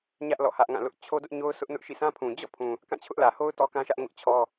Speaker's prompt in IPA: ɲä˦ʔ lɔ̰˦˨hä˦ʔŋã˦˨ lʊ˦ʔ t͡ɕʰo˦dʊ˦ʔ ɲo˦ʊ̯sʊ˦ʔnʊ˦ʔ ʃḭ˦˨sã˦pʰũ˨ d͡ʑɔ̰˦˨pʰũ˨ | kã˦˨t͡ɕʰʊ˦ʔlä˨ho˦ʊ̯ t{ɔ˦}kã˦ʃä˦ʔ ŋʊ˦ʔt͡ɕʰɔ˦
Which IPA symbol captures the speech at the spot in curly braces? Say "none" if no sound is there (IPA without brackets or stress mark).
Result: ɔ˦